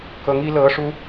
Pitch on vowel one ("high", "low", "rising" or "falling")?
rising